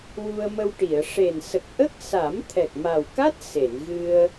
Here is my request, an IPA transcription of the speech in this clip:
wu˧ə̯mə˧wʈi˨˩˨ə̯ ʂe˨˩nsə˨˩k̚ʔə˦˥k̚sa˨˩˦m t̪ʰɛ˨˩k̚ma˨˩wka˦˥t̚ se˨˩˨nɣɨ˧ə̯

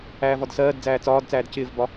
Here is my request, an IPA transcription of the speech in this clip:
æːvɒdsɜːdd͡zæː t͡sɒːdt͡sæːd cɪːvbɒ

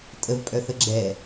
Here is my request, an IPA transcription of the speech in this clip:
tʼəvpʼœθə ɡ͡ǁɛ

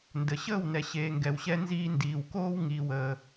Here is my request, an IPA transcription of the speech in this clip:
ndə˩ ɕəː˥˩w nɛ˩ɕeː˩ ŋɡɛ˩wɕɛ˧nziː˧ndiː˩w koː˧w ŋiː˩wəː˩

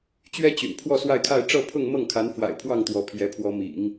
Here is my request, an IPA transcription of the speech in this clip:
t͡ɕɥɛ˥ t͡ɕy̰˨˩n pʰwɔ˥˧swa˥˧ɪ̯kʰa˥˧ɪ̯ ʈ͡ʂɤ˥˧pʰʊ˥˧ŋmɤ˥˩ŋkʰa˧˥n fwa̰˨˩ɪ̯pʰwɑ˥˩ŋ t̪wɔ˧˥pʰjɛ˧˥pʰwɔ˧˥mḭ˨˩˦ŋ

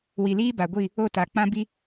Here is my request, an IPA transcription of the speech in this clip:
wi˨liː˦ba˨ɡʷi˦˨ | o˦˨ta˨ k͡pã˦bi˦

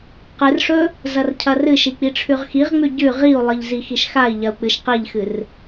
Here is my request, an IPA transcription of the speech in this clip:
qɨrʂɵ | zɐrcʰɐrɨʃi k͡piʈ͡ʂʰʉʁxiʁŋ͡mʉ ɟʉ ʁiu̯lˠɨʎ zixiʃxai̯ʎɐu̯ k͡pɨʃqiʎxɨr

